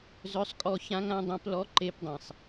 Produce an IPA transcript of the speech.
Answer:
z œ˧˥ sˤ kʼ ɔ˧ ç ã˧˥ ŋ ã˧˥ dˤ œ̃˧˥ p l ɔ˧˥ ǃ e˧˥ p dˤ ẽ˩ sˤ

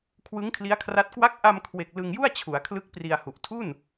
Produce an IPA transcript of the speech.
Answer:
kʰ w ɯ˦˥ ŋ kʰ l i˦˥ a̯ kʰ r a˦˥ t̚ k w a˦˥ k̚ ʔ a˧ m kʰ w e˨˩ k̚ l ɯ˧ ŋ j u˥˩ a̯ t͡ɕʰ u˩˦ a̯ kʰ l ɯ˦˥ k̚ p r i˧ a̯ h u˨˩ ʔ tʰ u˥˩ n

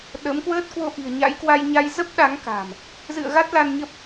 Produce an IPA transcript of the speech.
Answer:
ɗ ə˨˦ m k w əː˦˥ t̚ k w o˧ ʔ i̤˨˩ ə̯ ɲ a̰˧˥ j k w a˧ j ɲ a˧ j z ə˦˥ p̚ ɗ a˨˦ ŋ k a̤˨˩ m | z ɨ̰˧˨ ə̯ ɣ a˦˥ t̚ l a˧ n ɲ ə˦˥ p̚

